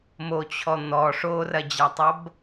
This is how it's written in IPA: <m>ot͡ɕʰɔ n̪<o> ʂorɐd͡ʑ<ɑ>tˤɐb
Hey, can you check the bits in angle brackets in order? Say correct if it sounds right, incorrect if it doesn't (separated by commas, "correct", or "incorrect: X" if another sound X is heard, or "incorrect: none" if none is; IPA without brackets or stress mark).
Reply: correct, incorrect: ɔ, incorrect: a